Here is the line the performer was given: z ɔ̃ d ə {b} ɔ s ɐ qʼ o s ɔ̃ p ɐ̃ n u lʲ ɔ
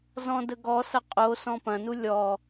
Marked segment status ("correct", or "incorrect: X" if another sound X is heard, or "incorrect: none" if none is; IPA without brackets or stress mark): incorrect: ɡ